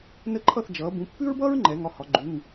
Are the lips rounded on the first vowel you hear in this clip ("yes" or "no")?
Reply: no